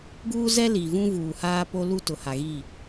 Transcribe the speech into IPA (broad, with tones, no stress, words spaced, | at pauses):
ɡuː˦zɛ˦li˨vũ˦ vuː˨haː˦ po˦lu˦ tʊ˨ha˨ɣi˦˨